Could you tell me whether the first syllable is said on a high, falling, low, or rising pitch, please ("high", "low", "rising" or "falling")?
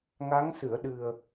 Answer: rising